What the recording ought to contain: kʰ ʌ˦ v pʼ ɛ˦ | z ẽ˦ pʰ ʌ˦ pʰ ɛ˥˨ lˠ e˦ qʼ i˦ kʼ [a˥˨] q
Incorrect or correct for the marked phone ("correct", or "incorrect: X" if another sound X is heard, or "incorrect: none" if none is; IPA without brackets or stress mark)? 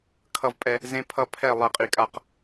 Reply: correct